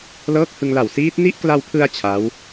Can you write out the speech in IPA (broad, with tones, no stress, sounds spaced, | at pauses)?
l ɤː˦˥ k̚ h ɯ˧ ŋ l a˨˩ w s iː˦˥ t̚ n i˦˥ ʔ k l a˧ w pʰ ɯ˧ a̯ t͡ɕʰ a˦˥ w